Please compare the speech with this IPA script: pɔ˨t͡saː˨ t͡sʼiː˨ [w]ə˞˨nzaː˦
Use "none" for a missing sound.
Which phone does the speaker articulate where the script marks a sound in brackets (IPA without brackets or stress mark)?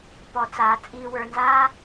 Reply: w